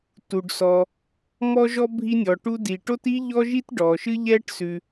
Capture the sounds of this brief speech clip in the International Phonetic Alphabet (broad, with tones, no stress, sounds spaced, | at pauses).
t u˩ ɖ s ɔ˩ | m ɔ˥ ʒ ɔ˥ bʱ i˥ nʲ ɔ˩ ʈ u˥ d i˩ ʈ o˥ t i˥ ʎ ɔ˥ ʒ i˥ t ɖ ɔ˩ ʃ ɨ˥ ʎ ɛ˥ ʈ s ʉ˩